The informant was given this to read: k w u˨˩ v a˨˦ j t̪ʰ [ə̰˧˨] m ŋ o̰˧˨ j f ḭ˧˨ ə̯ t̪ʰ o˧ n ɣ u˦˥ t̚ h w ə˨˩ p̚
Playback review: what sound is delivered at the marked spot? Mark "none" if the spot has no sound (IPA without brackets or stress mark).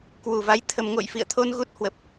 ə˧